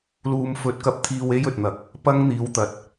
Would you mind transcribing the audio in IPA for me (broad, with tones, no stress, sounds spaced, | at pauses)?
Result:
l uː˨ m f ɵ˨˥ t̚ k ɐ˨˥ p̚ t̪ʰ iː˨ w e˥ j ɵ˨ t̚ n̪ ɐ˨ k̚ | p ɐ˥ ŋ n̪ iː˨˧ w t̪ ɐ˨ t̚